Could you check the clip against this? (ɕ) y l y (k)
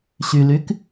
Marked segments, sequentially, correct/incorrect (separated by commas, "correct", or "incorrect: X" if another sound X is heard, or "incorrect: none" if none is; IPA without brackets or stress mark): correct, correct